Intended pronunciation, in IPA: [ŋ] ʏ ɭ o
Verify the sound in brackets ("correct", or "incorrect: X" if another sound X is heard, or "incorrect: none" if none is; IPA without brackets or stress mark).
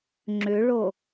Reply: incorrect: ŋ͡ǁ